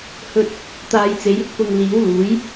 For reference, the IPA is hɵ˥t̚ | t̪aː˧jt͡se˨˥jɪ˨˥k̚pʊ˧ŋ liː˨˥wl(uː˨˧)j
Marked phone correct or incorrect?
incorrect